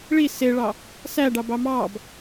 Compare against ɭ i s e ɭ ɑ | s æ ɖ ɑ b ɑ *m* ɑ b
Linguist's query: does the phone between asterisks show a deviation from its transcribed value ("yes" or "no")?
no